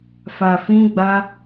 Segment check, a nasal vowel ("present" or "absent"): present